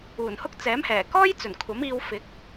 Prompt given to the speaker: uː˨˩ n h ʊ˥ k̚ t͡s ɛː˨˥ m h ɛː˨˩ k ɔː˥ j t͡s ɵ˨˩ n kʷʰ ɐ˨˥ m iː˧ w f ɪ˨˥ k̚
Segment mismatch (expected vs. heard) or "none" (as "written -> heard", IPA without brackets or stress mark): none